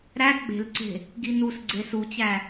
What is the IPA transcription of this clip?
ɾ æ d ɡ͡b e̤ l ǀ e̤ | ɡ i n u s ɡ͡ǀ e s u t͡ɕ æ

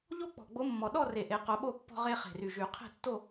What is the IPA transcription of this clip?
ʎ o˥˨ k͡p ɔ̤˨˩ ɡ͡b o˨˥ mː ɔ˨˩ ɗ ɔ˥˨ r e˨˩ ʔ e˨˩˦ q o˨˩˦ ɓ o˥˨ pː ɔ̤˦ ʁ e˦ χ e̤˨˩ r y˨˩ ʒ y˨˩˦ qʰ e̤˥˨ tː o˥˨

